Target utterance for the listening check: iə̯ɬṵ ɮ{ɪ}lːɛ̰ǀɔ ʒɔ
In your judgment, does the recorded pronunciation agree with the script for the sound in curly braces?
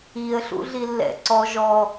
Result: no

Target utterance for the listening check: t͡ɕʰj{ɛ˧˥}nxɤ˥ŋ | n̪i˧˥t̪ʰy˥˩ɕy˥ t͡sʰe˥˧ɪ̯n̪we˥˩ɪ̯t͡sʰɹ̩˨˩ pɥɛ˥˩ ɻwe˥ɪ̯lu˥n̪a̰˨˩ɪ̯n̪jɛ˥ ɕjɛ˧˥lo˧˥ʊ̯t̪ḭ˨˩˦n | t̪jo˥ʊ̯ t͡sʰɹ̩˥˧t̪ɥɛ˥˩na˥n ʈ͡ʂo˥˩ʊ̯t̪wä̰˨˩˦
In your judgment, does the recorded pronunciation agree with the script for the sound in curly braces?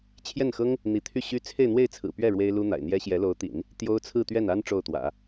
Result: no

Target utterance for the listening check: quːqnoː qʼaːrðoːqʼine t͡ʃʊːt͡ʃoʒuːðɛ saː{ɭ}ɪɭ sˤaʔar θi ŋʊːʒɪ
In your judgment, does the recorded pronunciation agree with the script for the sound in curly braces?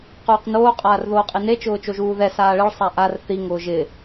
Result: yes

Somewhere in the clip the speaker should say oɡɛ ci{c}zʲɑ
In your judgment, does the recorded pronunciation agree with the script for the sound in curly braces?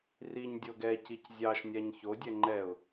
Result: yes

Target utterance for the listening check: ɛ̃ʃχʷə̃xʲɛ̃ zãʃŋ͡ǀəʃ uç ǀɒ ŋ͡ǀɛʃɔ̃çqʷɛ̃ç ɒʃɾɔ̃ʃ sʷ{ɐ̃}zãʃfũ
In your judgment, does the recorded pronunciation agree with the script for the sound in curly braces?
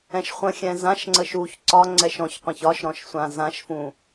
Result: no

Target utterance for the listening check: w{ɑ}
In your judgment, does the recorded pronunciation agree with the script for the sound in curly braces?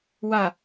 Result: no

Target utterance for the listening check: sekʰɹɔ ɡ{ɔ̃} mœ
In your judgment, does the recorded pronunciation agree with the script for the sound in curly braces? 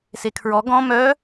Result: yes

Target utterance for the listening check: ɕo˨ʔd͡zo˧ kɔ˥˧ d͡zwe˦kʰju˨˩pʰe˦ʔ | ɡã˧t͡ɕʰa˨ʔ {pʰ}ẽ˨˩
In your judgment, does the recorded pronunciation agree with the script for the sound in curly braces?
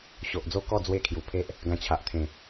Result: no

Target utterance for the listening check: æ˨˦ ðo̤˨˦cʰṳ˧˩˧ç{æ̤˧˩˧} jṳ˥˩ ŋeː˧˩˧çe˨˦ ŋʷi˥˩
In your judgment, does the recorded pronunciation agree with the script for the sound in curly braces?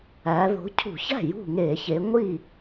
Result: no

